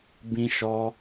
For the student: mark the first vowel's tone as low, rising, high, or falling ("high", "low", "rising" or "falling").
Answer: high